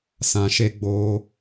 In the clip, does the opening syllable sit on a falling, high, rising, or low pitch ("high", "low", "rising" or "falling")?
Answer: low